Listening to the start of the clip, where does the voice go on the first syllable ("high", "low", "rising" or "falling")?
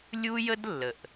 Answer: high